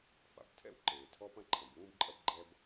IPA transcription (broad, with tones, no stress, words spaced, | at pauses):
fa̰˩btʰɛ̰˥wǃeː˩ tʰɔ˥pɐ̃˥ǃʰɐ̃˩b wũː˥bǃʼɐ˥b ɡ͡ǃɛ˥b